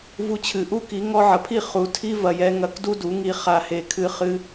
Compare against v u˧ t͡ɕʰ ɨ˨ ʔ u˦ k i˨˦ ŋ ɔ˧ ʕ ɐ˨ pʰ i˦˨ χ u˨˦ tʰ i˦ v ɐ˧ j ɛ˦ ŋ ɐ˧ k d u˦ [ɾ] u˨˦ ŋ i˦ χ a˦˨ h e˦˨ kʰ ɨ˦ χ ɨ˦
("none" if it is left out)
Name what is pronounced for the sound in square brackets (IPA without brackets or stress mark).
d